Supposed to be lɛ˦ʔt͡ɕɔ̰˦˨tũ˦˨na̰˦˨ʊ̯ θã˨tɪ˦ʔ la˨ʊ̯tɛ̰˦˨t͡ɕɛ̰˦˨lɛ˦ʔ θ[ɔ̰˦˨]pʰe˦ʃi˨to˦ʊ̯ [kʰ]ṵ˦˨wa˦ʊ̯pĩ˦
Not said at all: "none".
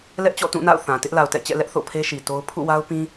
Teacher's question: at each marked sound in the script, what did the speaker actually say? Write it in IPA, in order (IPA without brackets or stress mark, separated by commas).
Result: o̰˦˨, pʰ